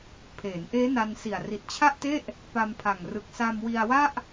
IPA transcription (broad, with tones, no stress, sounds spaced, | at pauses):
pʰ eː˩˦ n ʔ eː˦˥ n a˧ n s i˨˩ a̯ r i˨˩ t̚ t͡ɕʰ a˥˩ ʔ t e˥˩ ʔ | p a˧ m pʰ a˨˩ ŋ r ɯ˨˩ k̚ s a˧ m w i˧ a̯ w a˥˩ ʔ